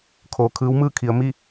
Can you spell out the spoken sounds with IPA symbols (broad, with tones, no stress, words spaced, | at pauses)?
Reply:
kʰoː˩kʰɯː˧˥w mɯː˥˨kʰi˩˧ə̯ mi˥˨